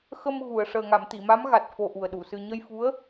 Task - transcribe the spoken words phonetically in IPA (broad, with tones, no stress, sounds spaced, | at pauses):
x ə˧ m ɣ u˨˩˨ ə̯ ʂ əː˨˩ ŋ a˨˩˨ m t̪ i˨˩˨ m a˧˥ m ɣ a˨˩ t̚ f o˧ ʔ u˨˩ ə̯ ɗ u˨˩˨ s ɨ˧ ɲ ə˧ j f u˧˥ ə̯